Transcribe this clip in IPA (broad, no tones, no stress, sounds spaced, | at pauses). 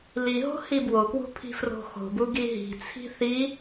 l i ɦ o̤ h i b w o k w ṳ pʰ i̤ f r o̤ x o̤ b u ɡ i ɦ i̤ t͡sʰ i̤ θ i